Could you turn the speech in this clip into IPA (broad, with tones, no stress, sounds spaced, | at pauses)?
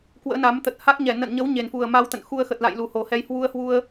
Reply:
k w ə̰ː˧˥ n a˨˦ m t̪ ə˨˩ t̚ h a˦˥ k̚ ɲ ɛ˧˩ n ə̰˧˨ n ɲ ə˨˦ w ɲ e˨˩ n f u˨˩ ə̯ m a˧ w t̪ ə̰˧˨ n x u˧ ə̯ x ə˨˩ t̚ l a̰˧˨ j l u˨˩ h o˨˩ h ɛ˧ j h w u˧ ə̯ h w u˧ ə̯